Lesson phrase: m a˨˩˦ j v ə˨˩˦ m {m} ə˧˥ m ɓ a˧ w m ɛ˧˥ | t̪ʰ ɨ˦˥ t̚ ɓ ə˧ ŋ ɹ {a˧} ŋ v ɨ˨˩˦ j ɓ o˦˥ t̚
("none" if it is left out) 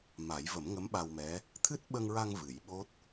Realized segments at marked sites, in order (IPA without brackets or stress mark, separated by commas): ŋ, a˧